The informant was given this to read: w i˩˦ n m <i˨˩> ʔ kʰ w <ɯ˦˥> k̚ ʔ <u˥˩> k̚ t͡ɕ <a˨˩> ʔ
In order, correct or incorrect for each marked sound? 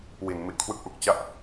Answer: correct, correct, incorrect, incorrect

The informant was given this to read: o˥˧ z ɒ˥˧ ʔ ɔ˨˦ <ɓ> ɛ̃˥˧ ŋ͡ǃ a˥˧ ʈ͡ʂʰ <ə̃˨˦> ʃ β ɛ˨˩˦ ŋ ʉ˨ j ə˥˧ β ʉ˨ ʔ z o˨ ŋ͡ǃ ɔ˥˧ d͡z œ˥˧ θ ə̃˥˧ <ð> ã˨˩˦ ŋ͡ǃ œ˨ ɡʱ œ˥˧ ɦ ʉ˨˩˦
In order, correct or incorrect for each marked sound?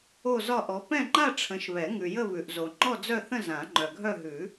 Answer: incorrect, correct, incorrect

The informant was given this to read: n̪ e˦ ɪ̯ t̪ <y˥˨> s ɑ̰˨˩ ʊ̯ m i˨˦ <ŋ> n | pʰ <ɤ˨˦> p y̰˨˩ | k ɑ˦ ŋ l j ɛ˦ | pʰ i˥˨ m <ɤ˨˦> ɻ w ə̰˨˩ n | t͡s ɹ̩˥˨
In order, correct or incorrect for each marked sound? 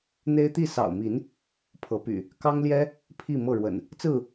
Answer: incorrect, incorrect, correct, incorrect

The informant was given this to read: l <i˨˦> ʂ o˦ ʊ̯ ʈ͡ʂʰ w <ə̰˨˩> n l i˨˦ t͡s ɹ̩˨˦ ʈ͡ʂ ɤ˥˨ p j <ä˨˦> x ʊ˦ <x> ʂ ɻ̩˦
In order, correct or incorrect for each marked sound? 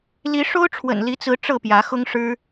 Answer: correct, correct, correct, incorrect

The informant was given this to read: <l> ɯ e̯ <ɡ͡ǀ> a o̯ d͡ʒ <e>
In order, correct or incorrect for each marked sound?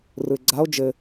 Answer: incorrect, correct, incorrect

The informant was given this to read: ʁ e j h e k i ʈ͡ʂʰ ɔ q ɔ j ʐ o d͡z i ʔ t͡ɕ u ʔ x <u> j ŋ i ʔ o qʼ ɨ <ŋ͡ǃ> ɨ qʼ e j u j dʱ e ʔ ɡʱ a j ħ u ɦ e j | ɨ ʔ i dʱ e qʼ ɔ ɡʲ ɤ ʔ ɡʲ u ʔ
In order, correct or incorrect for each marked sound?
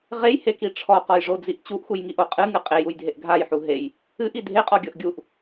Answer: correct, incorrect

